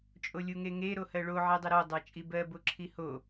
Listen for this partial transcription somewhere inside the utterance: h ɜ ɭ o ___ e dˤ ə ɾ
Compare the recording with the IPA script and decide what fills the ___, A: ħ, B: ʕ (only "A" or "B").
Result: B